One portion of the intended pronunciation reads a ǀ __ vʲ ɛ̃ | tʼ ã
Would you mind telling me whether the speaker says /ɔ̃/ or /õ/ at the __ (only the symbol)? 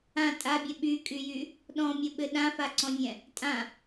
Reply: ɔ̃